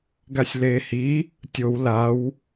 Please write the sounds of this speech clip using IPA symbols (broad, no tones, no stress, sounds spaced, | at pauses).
ɡ a sʲ l eː h i | tʲ o w l a w